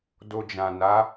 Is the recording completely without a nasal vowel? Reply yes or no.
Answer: no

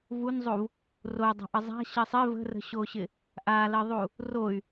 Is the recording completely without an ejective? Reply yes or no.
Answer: yes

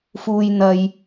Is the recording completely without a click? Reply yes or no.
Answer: yes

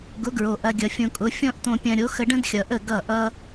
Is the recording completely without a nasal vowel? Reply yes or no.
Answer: no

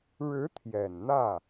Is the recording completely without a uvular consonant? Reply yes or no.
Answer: yes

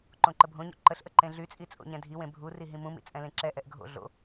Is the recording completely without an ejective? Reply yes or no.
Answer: no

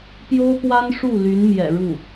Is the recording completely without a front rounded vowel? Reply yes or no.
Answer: no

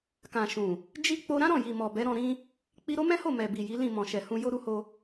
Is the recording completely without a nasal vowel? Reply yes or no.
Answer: no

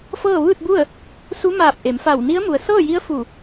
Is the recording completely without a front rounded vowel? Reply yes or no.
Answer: yes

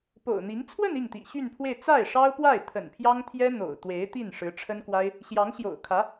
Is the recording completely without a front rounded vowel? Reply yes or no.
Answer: no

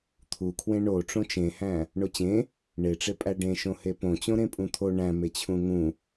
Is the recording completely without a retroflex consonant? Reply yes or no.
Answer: no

